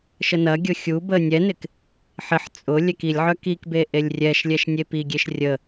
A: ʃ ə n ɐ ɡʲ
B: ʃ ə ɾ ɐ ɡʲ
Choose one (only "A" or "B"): A